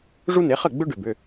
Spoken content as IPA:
ʐu˦n̪e˩˥χə˥˩ ɡ͡bʏ˦ɖʏ˩bʏ˩˧˩

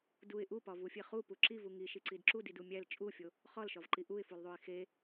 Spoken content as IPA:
duɪ̯ ʔupɒvufʲe χupu ǁivu ŋiʃiǀid ǁudidu mʲæl t͡ʃʼufʲo | χɒlʃɒvǃi ʔuɪ̯fulðˤuɪ̯ xe

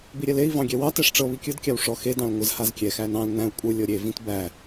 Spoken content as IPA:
biɾʲɛlei̯ vɑ̃ɡʲɛwɑ tɛʂʈ͡ʂɤ βikʲɯd kʲawʂɔ xe dɑ̃lŋʷɯz hazkʲɛ xænɑ̃l næ̃u̯ kʷʼɯ lʲɤɾʲe vĩtbæ

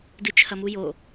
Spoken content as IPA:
dɨt͡ʃʰɐmujo

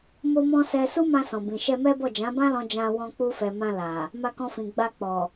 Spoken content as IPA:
mo˦mɔ̃˦ sɛ˦ su˦mã˧sɔ̃˨bĩ˨ ʃɛ˧mɛ˦bɔ˦˨ d͡ʒã˨˦bã˦lɔ̃˧ d͡ʒã˧wɔ̃˧k͡pu˧fɛ˨ mã˧la˨ | ma˧kɔ̃˧fĩ˨ ɡ͡ba˧k͡pɔ˨

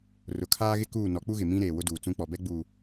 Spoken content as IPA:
rʊ˨kʰaː˦ɣɪ˦ kuː˦˨ nɔ˨˦k͡pu˦ɣɪ˨ mĩ˦ɾeː˨ wʊ˦duː˨t͡sũ˦ k͡pɔ˨bɛ˦ ɡ͡buː˨

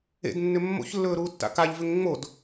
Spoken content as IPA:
ḛdnːʏ mːo̰çlːɵːɾuːtːa̰ kaʎvʏŋ ŋ͡mod

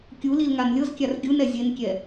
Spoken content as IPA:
kʲulil ŋanlʲɤzkʲar ɡʲunɛ zʲenkʲɛ

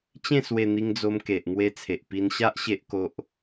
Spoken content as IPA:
t͡ɕẽ˥˧swe˧n̪i˧ŋd͡zo˧m ke˨ʔ ŋwe˧t͡sʰe˨ʔpi˧nɕa˦ʔ ɕe˦ʔ ko˦ʔ

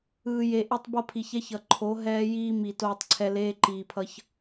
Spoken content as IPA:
ɯː˨je˨ʔe˦tˤbʌ˦ pʰi˨çɛ˦çʌ˨ ǃʰo˨˦ ɦɛː˦jiː˦ mi˨ toː˦tˤǀʰɛ˦ leː˦ǃiː˨pʰʌ˦ç

